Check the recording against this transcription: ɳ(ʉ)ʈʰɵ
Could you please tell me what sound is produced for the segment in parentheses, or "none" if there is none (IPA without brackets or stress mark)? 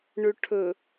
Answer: ʉ